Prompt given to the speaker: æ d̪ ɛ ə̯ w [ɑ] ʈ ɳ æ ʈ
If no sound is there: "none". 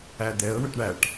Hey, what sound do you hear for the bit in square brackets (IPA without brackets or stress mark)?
ə